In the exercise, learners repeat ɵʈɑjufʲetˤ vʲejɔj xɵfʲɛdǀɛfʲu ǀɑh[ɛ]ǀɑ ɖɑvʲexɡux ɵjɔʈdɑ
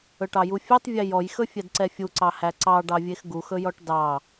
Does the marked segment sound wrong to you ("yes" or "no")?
yes